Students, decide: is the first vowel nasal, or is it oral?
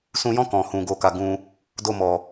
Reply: nasal